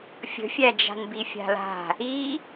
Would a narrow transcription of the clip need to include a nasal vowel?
no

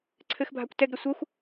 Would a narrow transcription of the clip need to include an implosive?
no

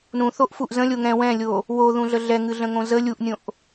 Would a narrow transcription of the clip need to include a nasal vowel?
yes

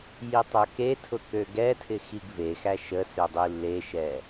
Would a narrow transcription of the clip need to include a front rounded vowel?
yes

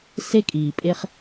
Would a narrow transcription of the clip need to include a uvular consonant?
yes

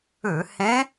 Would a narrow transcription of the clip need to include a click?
no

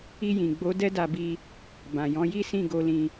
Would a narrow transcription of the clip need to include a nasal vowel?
yes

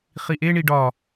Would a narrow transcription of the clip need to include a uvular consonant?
yes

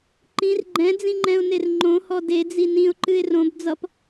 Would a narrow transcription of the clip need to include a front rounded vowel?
no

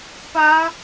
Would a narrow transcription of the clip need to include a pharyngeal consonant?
no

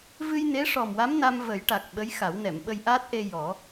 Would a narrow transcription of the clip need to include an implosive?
yes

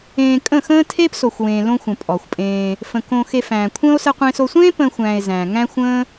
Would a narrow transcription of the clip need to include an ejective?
yes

